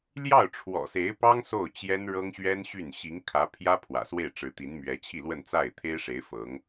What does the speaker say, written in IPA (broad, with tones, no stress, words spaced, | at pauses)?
ljɑ˥˩ʊ̯ʈ͡ʂʰwɔ̰˨˩se˧˥ɪ̯pɑ˥ŋ so˥˩ʊ̯t͡ɕjɛ˥n ɻɤ˥ŋɕɥɛ˥nɕy˥˩n ɕi˧˥ŋkʰä˧˥ pʰjä˥ pʰwä̰˨˩swe˥˩ɪ̯ʈ͡ʂɻ̩˧˥ t̪i˧˥nmɥɛ˧˥ t͡ɕʰi˥˧lwə˥˧nt͡sa˥˩ɪ̯ t̪ʰe˥ɪ̯ʂe˧˥ɪ̯ fɤ˧˥ŋ